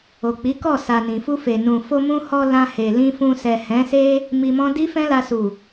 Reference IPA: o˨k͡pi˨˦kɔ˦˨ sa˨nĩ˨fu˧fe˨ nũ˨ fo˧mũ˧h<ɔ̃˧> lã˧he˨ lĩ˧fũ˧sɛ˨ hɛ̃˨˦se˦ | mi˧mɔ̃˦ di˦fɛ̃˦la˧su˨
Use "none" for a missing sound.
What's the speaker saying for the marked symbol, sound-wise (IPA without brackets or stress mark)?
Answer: ɔ˧